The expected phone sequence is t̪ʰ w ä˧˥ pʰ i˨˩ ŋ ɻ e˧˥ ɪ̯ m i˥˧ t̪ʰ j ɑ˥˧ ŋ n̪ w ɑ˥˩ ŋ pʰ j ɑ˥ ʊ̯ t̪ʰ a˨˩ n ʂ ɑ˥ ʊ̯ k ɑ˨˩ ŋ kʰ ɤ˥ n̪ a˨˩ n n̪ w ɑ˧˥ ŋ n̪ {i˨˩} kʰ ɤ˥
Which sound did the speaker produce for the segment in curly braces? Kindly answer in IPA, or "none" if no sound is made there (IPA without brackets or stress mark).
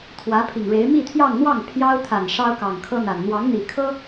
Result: i˨˩